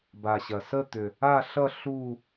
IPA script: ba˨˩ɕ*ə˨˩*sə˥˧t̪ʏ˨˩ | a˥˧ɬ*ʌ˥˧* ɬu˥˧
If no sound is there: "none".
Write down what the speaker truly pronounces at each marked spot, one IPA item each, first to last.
ɐ˨˩, ʌ˥˧

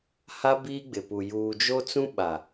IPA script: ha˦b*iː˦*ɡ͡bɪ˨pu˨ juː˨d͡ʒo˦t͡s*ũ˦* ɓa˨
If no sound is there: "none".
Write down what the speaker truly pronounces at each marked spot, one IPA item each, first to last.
iː˦, ũ˦

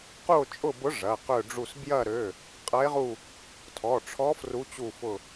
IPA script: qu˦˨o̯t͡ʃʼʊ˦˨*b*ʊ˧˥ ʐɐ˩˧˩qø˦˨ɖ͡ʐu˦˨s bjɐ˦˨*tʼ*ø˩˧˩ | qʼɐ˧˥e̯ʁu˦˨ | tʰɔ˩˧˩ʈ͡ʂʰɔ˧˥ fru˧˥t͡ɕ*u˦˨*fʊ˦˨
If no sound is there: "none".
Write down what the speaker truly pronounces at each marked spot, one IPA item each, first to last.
b, ɾ, u˦˨

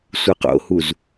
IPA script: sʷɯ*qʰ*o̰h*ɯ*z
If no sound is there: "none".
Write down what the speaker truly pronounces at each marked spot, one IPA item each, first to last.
q, u

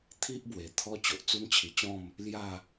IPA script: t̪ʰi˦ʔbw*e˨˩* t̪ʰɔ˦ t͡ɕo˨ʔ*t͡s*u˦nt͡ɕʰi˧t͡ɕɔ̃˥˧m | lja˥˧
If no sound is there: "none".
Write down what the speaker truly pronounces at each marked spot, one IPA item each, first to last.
e˨˩, t͡s

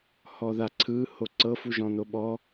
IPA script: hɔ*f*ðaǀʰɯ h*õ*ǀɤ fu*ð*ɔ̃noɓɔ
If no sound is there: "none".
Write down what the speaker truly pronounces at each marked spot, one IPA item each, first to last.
none, o, ʒ

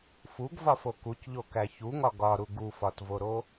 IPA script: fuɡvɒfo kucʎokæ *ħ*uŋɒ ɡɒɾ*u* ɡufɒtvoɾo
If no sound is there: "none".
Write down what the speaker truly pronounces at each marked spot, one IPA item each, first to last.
ç, u

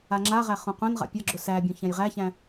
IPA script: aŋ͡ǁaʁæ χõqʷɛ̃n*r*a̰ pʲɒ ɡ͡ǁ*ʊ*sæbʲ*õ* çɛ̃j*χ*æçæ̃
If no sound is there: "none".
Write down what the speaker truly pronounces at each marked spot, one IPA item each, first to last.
ʁ, ʊ, õ, ʁ

